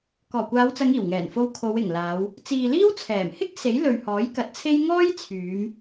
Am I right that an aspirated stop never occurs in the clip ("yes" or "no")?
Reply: no